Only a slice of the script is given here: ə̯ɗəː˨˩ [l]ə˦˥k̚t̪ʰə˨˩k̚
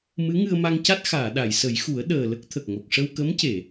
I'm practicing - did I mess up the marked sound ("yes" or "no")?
no